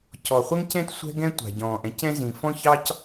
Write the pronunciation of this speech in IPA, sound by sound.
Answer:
c ɔ˩ χʷ ɛ˥ ŋ c ɛ̃˥ t sʷ ɛ̤˥ ɡ ɛ̃˥ tʷ a̤˩ ɟ ɔ̃ː˩ ʔ ɛ̃˥ c ɛ̃˥ z ĩ˩ f ɔ̃˥ ç ɑ˥ c

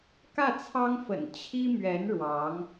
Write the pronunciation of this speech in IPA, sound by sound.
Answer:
k ä˥˩ t͡sʰ ɑ˥ ŋ f ə̰˨˩ n t͡ɕʰ i˥ m ɥ ɛ˧˥ n ɻ w ɑ˧˥ ŋ

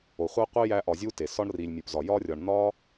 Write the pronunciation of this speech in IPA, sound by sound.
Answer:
o˨ χʷ æ˦ qʷ i˦ j æ˧ ʔ ɒ˧ zʲ u˦ t e˨ s ɒ˦ ɳ r i˨ lʲ mʲ u˨ p z ɒ˨ j ɒ˧ rʲ ɒ˨ ɳ n̪ ɒ˦

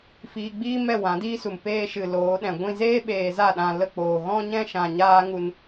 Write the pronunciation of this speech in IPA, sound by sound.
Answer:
f iː˧ ɡ͡b iː˦ m ɛ˦˨ w ã˨˦ d iː˦ s u˨ m p eː˧ ʃ ɨ˨ l oː˨˦ ɗ ɛ̃˨ ɡʷ ĩ˧ z eː˦ ɓ eː˧ z a˦˨ ɗ ã˧ l ə˧ k͡p oː˨ ɣ ɔ̃˦ ɲ ɛ̃˦ ʃ ã˧ ɲ aː˦ ŋ u˧ n

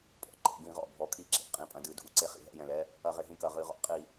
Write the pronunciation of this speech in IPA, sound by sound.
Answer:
pʰ ɔ̰˩ ǃ ḛ˧˩ ɡ ĩ˧˩˧ ʁ ɔ̰˩ bʱ ɔ˩˧ kʰ i˧˩ ǁ ḛ˧˩ qʼ ĩ˩˧˩ pʼ ɐ̃˩˧ d ɨ˩˧ dʱ u˩˧˩ ǀ e˧˩ χ ḭ˩ ɦ ɛ̰˩˧˩ j ɛ̃˩ l ɛ˩˧˩ | ɐ˧˩˧ ʁ e˩˧ ɦ ĩ˩˧˩ k ɐ˩˧˩ ʁ ɨ˧˩˧ ʁ ɔ̰˩˧ qʼ i˧˩˧

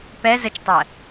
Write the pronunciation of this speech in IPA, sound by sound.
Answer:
p ɛ z ə t͡ʃ tˤ ɜ

